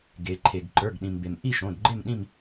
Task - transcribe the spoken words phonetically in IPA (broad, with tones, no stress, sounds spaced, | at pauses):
ɡ e˩ ǃʰ e˩ ɡ ǃ ə˞˩˧˩ ɡ ɗ ĩ˩ m b e˩ m ʔ i˥˨ ʃ õ˩˧˩ d ɡ͡ǃ e˥˨ m ɗ ĩ˥˨ m